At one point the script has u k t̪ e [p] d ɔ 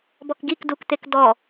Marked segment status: incorrect: k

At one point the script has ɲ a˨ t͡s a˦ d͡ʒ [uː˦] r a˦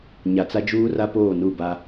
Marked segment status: correct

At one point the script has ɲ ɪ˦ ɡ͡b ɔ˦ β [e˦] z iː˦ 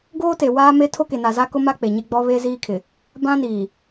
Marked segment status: correct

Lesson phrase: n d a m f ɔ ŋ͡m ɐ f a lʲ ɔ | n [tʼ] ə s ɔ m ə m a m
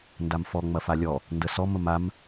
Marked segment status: incorrect: d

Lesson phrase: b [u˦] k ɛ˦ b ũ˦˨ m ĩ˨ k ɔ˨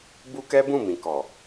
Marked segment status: correct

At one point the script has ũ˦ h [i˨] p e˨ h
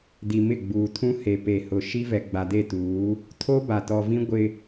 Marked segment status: incorrect: e˨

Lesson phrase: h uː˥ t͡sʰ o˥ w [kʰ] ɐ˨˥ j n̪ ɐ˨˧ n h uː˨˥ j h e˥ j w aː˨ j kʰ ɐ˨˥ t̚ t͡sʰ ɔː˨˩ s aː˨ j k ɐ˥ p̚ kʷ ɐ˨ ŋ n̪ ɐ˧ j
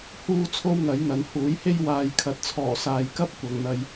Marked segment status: incorrect: ŋ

